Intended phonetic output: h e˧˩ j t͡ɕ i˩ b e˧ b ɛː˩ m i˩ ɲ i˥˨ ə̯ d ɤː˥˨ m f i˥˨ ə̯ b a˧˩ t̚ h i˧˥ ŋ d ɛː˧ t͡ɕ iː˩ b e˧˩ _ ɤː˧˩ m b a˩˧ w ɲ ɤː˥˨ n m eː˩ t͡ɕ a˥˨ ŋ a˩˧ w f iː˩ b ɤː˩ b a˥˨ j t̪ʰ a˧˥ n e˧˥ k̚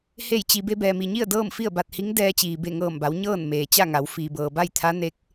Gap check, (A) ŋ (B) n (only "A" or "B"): A